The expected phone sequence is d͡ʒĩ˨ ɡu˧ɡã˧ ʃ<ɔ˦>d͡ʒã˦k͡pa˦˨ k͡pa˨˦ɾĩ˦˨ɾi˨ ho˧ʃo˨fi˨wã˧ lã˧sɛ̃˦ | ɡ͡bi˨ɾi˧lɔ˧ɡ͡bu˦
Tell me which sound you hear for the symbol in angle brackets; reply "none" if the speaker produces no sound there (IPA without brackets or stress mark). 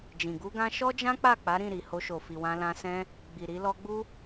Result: ɔ˦